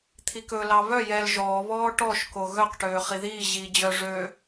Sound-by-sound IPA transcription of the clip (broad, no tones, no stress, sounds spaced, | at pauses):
t̪ʰ i k ɵ l ɑ β œ j ɛ l ʒ ɔː β ɔː ʈ ɔ ʃ k o ɣ œ q ʈ øː χ i ð iː ʑ iː d͡ʑ œ ʐ ø